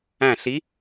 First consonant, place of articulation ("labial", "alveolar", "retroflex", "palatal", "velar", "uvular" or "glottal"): alveolar